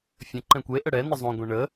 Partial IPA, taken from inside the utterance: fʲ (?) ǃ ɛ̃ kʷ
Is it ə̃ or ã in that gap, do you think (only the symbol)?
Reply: ə̃